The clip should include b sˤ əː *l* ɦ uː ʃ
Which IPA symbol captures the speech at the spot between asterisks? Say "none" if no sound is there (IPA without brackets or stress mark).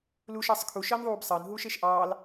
n